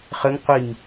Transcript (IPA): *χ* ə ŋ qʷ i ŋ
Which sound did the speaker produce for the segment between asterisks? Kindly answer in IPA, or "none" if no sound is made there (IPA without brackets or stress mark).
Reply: χ